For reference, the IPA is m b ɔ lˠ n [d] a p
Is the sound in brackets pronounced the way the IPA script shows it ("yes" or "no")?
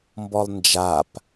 no